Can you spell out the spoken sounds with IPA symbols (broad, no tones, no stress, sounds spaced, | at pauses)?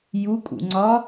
j u kʼ ṵ ŋ͡ǀ ɒ